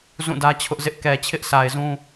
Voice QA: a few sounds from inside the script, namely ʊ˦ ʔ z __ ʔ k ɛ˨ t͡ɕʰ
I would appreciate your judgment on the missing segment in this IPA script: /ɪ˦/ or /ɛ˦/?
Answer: ɪ˦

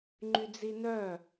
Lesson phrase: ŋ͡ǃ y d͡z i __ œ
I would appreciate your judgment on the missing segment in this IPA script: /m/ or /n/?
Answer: n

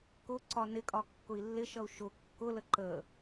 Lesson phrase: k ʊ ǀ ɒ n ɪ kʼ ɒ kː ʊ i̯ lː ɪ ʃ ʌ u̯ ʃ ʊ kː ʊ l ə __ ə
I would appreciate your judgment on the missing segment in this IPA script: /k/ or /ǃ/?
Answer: ǃ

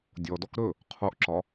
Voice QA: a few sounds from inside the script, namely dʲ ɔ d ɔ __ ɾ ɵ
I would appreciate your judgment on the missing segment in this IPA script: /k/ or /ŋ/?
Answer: k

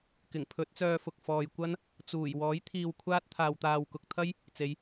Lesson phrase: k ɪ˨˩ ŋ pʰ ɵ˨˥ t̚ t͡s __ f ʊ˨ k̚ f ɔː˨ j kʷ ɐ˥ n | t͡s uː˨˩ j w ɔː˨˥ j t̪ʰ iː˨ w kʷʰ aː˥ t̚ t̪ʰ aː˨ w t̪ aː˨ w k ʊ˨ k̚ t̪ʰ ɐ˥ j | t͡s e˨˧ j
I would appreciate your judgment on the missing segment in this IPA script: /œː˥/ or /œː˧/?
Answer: œː˧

